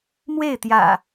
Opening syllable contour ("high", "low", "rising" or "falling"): falling